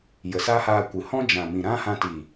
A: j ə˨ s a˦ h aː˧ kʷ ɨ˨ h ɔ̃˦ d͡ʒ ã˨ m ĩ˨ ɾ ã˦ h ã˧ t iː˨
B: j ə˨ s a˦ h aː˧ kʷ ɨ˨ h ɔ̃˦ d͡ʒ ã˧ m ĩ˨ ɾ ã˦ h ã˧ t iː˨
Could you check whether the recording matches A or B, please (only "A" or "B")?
A